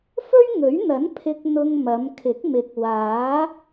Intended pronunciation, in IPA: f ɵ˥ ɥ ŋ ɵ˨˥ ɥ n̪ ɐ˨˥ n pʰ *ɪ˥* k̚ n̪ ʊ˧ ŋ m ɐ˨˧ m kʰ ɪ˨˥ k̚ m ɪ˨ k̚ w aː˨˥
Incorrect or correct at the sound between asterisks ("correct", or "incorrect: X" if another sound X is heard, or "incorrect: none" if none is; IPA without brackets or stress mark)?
incorrect: ɪ˧